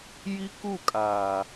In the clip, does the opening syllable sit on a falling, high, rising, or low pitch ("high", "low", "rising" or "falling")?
high